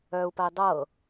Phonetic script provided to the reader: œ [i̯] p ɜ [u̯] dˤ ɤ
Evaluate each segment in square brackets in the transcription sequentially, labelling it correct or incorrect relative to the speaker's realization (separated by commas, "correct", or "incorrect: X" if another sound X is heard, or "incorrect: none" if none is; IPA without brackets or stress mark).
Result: incorrect: u̯, incorrect: i̯